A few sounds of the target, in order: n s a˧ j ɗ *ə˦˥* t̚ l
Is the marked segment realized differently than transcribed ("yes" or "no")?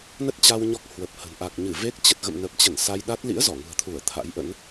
yes